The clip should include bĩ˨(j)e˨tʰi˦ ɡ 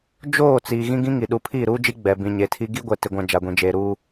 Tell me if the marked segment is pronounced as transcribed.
no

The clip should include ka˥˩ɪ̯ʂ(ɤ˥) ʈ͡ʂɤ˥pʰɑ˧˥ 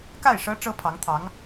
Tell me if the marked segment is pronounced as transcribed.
yes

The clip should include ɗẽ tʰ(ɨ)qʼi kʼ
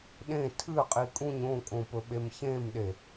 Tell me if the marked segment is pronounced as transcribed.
yes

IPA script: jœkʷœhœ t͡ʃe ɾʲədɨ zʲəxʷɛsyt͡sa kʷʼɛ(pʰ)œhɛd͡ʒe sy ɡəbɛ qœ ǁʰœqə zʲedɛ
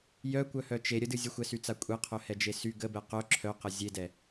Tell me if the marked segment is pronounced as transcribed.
no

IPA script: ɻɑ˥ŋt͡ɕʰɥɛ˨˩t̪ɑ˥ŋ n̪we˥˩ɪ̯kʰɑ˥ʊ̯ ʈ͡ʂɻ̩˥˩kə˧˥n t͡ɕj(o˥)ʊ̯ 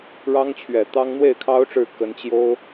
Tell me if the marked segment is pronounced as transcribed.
yes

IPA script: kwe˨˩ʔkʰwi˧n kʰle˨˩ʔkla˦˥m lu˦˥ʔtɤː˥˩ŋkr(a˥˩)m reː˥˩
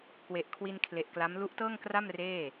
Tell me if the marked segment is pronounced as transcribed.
yes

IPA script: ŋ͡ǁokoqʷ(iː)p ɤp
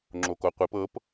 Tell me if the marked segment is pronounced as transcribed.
no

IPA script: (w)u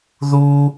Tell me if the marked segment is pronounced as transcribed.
no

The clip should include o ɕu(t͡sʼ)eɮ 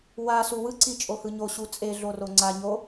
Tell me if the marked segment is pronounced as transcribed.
yes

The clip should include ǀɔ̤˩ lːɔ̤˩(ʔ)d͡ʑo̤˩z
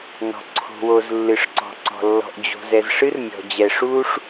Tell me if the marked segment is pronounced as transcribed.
yes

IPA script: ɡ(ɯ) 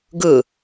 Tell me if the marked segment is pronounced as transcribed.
yes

